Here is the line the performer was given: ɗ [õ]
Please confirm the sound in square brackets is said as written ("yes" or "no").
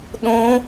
yes